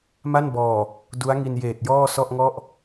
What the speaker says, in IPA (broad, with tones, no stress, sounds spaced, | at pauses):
m a˥˩ n b ɔː˨˩ | d u˦˥ a̯ ŋ i˧ n j eː˨˩ t̚ j ɔː˥˩ s ɔ˥˩ ʔ ŋ ɔ˥˩ ʔ